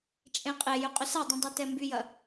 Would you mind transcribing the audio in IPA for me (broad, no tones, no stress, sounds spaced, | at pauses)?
t͡ʃʼ ẽ qʼ e j ʏ qʼ ʏ s a dˤ ĩ dˤ ɛ t ɛ m b y j ɐ